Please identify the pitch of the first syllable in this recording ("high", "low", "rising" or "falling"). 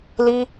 high